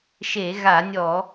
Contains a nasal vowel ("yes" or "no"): no